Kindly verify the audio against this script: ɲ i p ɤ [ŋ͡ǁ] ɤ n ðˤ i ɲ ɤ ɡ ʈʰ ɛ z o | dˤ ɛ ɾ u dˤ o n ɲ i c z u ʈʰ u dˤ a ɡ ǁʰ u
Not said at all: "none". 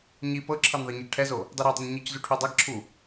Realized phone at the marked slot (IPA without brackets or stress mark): ǁʰ